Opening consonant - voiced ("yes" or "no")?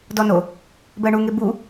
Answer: yes